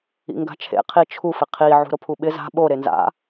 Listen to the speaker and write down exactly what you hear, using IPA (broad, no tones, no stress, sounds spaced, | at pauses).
ḭ ŋ ɡ a̤ t͡ʃʰ ḛ qʰ i t͡ʃʰ u f ɪ qʰ i ʕ ṳ ɾ o pʰ u ɓ ɪ z a̤ ɓ o ɾ e n z a̰